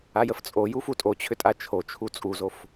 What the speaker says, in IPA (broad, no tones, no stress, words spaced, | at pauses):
ajəft͡sʼoju futʼot͡ɕʰʏ tʼat͡ʃʰot͡ʃʰu t͡sʼuzof